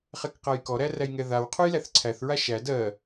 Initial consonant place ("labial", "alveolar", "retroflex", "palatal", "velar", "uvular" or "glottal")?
uvular